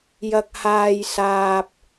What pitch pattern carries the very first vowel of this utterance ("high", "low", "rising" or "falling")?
low